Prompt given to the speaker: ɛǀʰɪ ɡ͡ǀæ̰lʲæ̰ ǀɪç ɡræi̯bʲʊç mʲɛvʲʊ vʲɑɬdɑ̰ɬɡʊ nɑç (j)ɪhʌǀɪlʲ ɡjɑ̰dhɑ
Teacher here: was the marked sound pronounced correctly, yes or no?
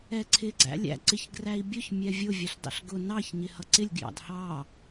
no